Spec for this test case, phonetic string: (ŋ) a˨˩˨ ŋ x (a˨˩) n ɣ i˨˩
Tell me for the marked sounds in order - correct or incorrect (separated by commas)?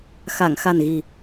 incorrect, correct